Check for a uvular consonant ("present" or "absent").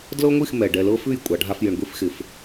absent